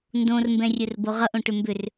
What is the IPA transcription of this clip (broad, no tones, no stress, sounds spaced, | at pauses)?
n d õ r m b ɛ̃ rʲ ɵ r b o ʁ ʌ ʔ õ ʈ ʏ m b ʏ r